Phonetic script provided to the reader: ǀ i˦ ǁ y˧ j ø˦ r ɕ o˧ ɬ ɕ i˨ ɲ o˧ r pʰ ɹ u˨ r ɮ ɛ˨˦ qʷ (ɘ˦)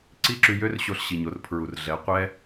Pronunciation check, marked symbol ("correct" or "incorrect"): incorrect